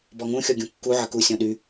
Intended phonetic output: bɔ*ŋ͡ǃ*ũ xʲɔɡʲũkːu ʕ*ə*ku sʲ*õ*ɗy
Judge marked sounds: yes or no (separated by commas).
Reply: no, yes, no